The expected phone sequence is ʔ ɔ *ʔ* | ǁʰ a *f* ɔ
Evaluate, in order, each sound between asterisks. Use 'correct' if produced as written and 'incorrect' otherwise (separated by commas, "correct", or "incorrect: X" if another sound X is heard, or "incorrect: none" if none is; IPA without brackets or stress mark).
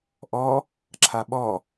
incorrect: none, incorrect: ɓ